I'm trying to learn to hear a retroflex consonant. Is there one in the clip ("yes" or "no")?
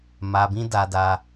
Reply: no